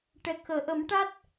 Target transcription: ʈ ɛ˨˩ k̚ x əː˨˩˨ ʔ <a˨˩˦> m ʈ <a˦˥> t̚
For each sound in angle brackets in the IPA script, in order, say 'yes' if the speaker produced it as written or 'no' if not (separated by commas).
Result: no, yes